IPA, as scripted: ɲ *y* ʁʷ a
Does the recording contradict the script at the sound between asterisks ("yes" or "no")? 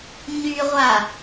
no